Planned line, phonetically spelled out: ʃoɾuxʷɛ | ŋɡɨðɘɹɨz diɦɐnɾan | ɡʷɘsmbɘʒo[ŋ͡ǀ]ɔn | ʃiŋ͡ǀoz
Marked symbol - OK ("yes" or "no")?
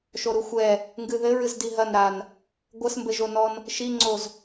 no